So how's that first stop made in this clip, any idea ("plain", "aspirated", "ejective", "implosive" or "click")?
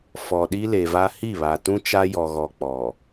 implosive